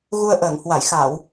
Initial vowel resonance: oral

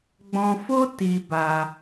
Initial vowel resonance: nasal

